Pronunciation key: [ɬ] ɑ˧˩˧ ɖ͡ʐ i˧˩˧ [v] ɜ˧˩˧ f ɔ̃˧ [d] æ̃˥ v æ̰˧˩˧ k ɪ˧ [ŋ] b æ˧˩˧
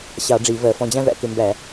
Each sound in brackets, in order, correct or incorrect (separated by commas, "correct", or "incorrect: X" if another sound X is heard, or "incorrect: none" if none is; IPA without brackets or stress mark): incorrect: ɕ, correct, incorrect: d͡ʑ, incorrect: m